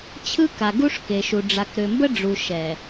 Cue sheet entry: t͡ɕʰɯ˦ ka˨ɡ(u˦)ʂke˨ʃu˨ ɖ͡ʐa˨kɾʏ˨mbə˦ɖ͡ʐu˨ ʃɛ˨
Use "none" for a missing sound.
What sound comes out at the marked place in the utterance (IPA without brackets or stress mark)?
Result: u˦